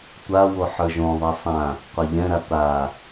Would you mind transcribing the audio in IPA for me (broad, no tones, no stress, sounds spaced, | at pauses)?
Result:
tʷ a w o ħ ə˞ ʒ õ ðˤ e sˤ ã | qʷ a ʎ ɛ̃ ɾ a t̪ a